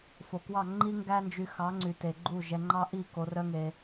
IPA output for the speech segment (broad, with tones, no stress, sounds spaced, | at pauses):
f o˨ k w ɑ˦˨ ŋ͡ǃ i˦ ŋ ɡ æ˦ n d͡ʒ y˧ x ɑ˨˦ ŋ͡ǀ y˨ t e˨ ɡ͡ǃ u˦˨ ʒ ɛ˧ ŋ͡ǃ ɑ˦ ʔ i˦˨ k o˧ r œ˦ ŋ e˧